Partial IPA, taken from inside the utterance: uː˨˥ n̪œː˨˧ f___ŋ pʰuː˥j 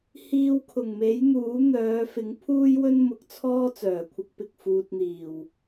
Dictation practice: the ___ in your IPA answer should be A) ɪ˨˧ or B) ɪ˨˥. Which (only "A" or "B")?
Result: B